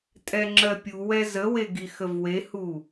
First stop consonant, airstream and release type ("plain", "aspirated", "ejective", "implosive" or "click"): ejective